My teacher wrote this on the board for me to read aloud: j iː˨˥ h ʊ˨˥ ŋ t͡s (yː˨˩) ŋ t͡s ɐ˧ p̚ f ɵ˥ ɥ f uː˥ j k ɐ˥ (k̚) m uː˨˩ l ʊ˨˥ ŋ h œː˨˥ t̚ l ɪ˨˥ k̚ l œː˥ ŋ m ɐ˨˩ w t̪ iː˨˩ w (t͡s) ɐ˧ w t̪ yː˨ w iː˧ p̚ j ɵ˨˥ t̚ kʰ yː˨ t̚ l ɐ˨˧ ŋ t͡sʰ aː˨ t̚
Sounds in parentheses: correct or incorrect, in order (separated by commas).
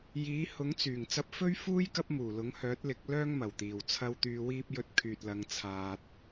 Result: correct, incorrect, incorrect